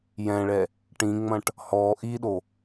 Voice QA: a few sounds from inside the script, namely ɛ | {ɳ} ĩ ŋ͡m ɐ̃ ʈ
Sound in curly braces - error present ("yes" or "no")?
yes